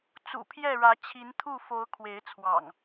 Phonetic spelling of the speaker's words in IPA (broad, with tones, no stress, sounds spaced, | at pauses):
t͡s ṵ˨˩ pʰ j ɛ˥˨ ɻ ä˨˦ t͡ɕʰ i˨˦ n t̪ʰ u˥˨ f o˨˦ ʊ̯ kʰ w e˨˦ ɪ̯ t͡sʰ w ɑ̰˨˩ ŋ